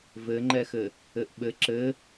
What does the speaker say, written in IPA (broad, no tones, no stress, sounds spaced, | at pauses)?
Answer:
v ɘ ŋ͡ǃ ɛ x ɘ | ɘ ʔ ɓ ɘ ǁ ɘ